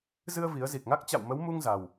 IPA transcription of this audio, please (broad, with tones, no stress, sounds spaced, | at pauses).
z ɨ˧ ə̯ v i˨˦ ə̯ z i˨˩ k̚ ŋ a˦˥ k̚ t͡ɕ a̰˧˨ w m ə˨˦ w m u˧ ŋ z a˨˩ w